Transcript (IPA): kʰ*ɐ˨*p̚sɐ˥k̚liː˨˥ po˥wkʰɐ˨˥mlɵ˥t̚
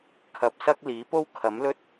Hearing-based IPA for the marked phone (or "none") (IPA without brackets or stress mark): ɐ˨